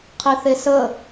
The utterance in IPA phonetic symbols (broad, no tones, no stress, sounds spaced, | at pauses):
qʰ i θ e s ə